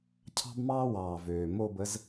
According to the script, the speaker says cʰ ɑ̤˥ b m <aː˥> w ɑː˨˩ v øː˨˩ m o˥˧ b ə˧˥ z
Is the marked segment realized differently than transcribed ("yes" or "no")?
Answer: yes